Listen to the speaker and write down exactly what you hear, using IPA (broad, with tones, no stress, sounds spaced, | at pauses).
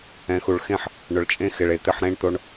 ɛ̃˨ x u˨ ɭ x ẽ˦ ħ | ɳ ʊ˨ ɭ t͡ʃʼ ẽ˦ x ɪ˨ ɭ e˨ t̪ ɪ˦˨ ħ ɾ ẽ˦ ɳ t̪ o˦ ɳ